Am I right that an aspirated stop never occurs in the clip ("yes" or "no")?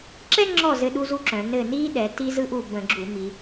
yes